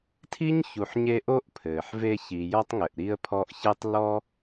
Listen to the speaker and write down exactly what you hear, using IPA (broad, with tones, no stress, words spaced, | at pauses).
tʰi˥ɲ çu˨ħɲe˦ ʔo˥ʔpʰɘː˩ħve˦ çi˨jɔ˥tˤŋɘ˨ʔ ɾi˦ə̯pʰɔ˦ʔçɛ˥tˤ lɔ˥